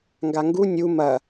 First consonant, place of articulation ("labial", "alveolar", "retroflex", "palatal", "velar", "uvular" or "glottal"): velar